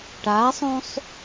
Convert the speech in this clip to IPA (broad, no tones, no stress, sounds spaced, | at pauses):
ʈ a sˤ ũ sˤ